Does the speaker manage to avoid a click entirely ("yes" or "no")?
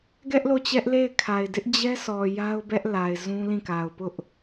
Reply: yes